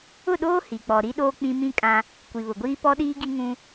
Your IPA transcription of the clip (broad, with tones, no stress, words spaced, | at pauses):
ʊ˦˨ɗoː˦ hi˨k͡pɔ˨ɾi˦ɗoː˦ k͡pĩ˦ mĩ˦kʼã˦ | kʷi˨βʊ˨ɡʷiː˦ pɔ˦ɗiː˦ɡi˦ŋũ˦